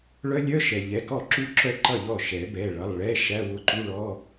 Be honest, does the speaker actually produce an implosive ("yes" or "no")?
no